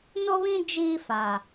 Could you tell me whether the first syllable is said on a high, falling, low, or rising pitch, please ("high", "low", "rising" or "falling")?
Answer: high